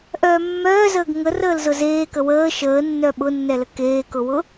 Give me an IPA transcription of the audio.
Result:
ʔœːmːœːzəːɡ ŋərəːlzʊ zeːkə wəː ʃəːnːœ ɓʊnːɛlə keːkʊwʊ

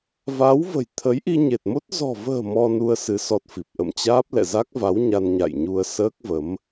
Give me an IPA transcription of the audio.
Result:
va˨˦wvə̤˨˩j t̪ʰə˨˦jʔi˧ɲe˨˩t̚mo˦˥t̚ zɔ̤˨˩və̤ː˨˩ mɔ˧nu˧ə̯sɨ˨˦ sɔ˦˥t̚fi˨˩p̚ ʔə̰˧˨mt͡ɕaː˦˥p̚ lɛ̰˧˨za˦˥k̚va˨˦w ɲa˧nɲa̰˧˨jɲu˧ə̯ səː˦˥k̚və˨˦m

